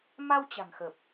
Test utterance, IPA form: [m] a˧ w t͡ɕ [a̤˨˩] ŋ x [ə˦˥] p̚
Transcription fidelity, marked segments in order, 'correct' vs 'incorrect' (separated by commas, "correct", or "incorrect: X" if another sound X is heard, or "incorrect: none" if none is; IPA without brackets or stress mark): correct, correct, incorrect: ə˨˩